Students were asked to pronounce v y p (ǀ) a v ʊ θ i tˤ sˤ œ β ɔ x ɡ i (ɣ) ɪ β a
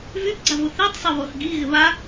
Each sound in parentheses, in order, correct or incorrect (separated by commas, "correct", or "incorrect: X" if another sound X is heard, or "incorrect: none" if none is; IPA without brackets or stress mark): incorrect: ɡ͡ǀ, correct